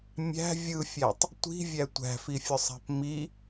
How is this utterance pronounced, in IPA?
mʲ æ̤ vʲ ɯ fʲ æ tˤ | tʷ i̤ vʲ æ tʷ æ̤ f i fʲ ʊ sˤ æ̤ p m i

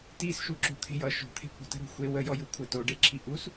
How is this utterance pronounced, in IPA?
t i s ʃ u ǁ o̤ t̪ʰ e̤ j ʌ ʃ o̤ t̪ʰ e̤ kʷ ə̤ t ə̤ ɾ o̤ xʷ e w ə j ɔ j u kʷʰ ə t o ɖ e ǁʰ i ʔ u s

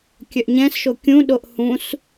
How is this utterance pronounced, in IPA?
kʲ œ ʔ ɲ ɛ̃ s ʃ o kʲ ũ ɗ o ʔ h ũ s

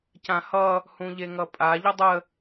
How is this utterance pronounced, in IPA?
c ã h ʌ | h ũ ʎ e ŋ ʌ pʼ a ʎ ə dˤ ə

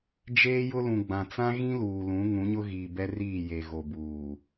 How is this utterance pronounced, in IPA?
d͡ʒ eː˦ j ʊ˦ l ũ˨ ɡ͡b ã˨ t͡s ã˦ ɣ ĩ˦ l uː˨ l ũ˨˦ ŋ ũ˨˦ ɲ ʊ˦ ɣ iː˨ b ɛ˦ r iː˦˨ j e˨ ɣ o˨ b uː˨

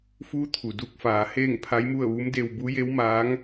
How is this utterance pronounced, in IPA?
f uː˧˥ t̪ʰ u˩ d u˧ k̚ f aː˩˧ h eː˥˨ ŋ pʰ a˧˥ j m u˥˨ ə̯ ʋ u˧˥ m d e˧ w b u˧˥ j e˧˥ w m aː˧˥ ŋ

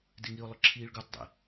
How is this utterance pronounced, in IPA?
d ɪ ŋ i ʊ̯ lˠ ʊ ǁʰ iː ɭ ɡ u tˤ dˤ ḭ

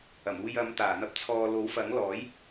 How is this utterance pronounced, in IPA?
ɐ˨˩ m uː˨ j ɐ˨˧ m t̪ aː˨˩ n̪ ɐ˧ p̚ t͡sʰ ɔː˨ l o˨˥ w f ɐ˨˥ ŋ l ɔː˨˥ j

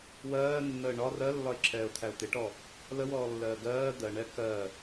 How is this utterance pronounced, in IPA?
w ɜː nː əː ɳ ɒ r ɜ lː ɒ ɪ̯ ǁʰ ɛː ʊ̯ t̪ʰ æ ʊ̯ t̪ ɪ ʈ ɔ | l ə w ɔː lː ɜː ɡ ɜː d̪ ɜ ɳ ɛ k ɜ

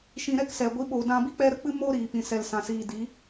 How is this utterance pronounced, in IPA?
ʃ ĩ˧ ɾ ɛ˦ k s ɛ˨ ɡʷ i˨˦ ɓ oː˨ d ã˧ b i˦ k͡p ɛ˦ ɾ ə˦ k͡p ɨ˦ m o˦ ɾ iː˨ p ĩ˨ s ɛ˨ l s ã˨ s iː˨ d i˨˦

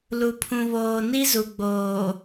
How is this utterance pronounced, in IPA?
l u˨ pʰ ũ˨ β oː˨ n i˦ z u˨ ɡ͡b oː˨

